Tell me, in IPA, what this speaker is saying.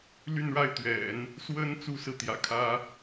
l y˥˧ n ɻ a˥˩ ɪ̯ t̪ ɥ ɛ̰˨˩˦ n | s w ə˥ n t͡s u˥ s ɹ̩˨ t̪ j ä̰˨˩ kʰ ä˥

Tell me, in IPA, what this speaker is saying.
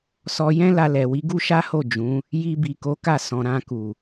s ɔ˧ j ɛ̃˦ l a˧ l ɛ˨ w i˨˦ ɡ u˦ ʃ a˦ h o˦˨ d͡ʒ ũ˨˦ | j i˧ b i˨ k o˨˦ k a˦˨ s ɔ̃˨ ɾ ã˧ k u˨

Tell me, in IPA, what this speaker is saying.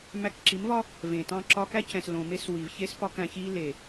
m æ˧ k ǁ i˨˦ m v ɒ˦ | v ẽ˨ t ɑ̃˦ ǁ ɒ˦ k æ˦ c ɛ̃˨ s l õ˨ m e˦ s w i˨ v ç e˦ s p ɒ˦ k æ̃˧ ç i˦ l e˨

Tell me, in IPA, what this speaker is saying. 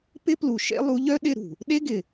p ɪ˦ p l u˨ ʃ ḛ˦ lˠ u˨˦ ʎ œ˦ ɗ ɪ˦˨ ɾ ṳ˨ | ɗ e˦ ɡ ɪ˨

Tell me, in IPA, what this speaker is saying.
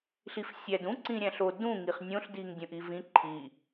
ɬ i f sʲ æ d ũ ǀ ĩ ɾʲ æ̃ ɬ o d ũ ŋ i χ nʲ õ ɬ d i ŋ dʲ õ ʔ i v ĩ ǃʰ i

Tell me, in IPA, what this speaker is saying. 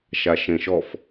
ʃ a ʃ ẽ ʃ ɔ f

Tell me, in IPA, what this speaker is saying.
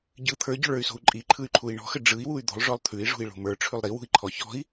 ɟ ɯ t̪ʰ ə˞ ɟ ɔ̤ ɭ ə˞ y̯ s o̤ u̯ ǃʼ i ǃʰ ɯ y̯ ǃʰ u i̯ ɳ ɔ̤ x ə ɖ͡ʐ ɯ i̯ w u y̯ d̪ o̤ lˠ ʐ ɔ lˠ t̪ʰ ʉ i̯ ʐ ṳ i̯ ɭ o̤ m ə˞ ʈ͡ʂʰ ʉ lˠ ɾ i w ṳ i̯ ǃʰ ɔ ç ɔ̤ i̯

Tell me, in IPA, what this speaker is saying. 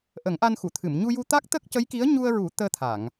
ʔ ə˨˩˦ ŋ ʔ a˧ n x u˨˩˨ t̪ʰ ɨ˨˩˨ m ɲ u˧ j u˧ t̪ a˦˥ k̚ t̪ ə˦˥ k̚ c ə˧˥ j k i˧˥ ə̯ ɲ u˧ ə̯ ɹ u˨˩˦ t̪ əː˧ t̪ʰ a˨˩˨ ŋ

